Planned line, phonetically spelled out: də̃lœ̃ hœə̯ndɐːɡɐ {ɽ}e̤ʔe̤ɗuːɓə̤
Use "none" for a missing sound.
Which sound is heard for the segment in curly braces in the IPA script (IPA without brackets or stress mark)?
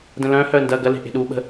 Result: l